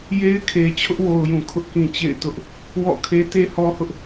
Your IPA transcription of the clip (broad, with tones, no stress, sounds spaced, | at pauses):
j e˦ ɪ̯ kʰ e˨ t͡ɕʰ ʊ˦ ʔ w o˨ ʊ̯ j ũ˨ kʰ ʊ˦ ʔ k ĩ˨ t͡ɕ ḛ˦˨ ɪ̯ t ʊ˦ ʔ | w ɔ̰˦˨ kʰ e˦ t e˦ h ɔ˦ h ʊ˦ ʔ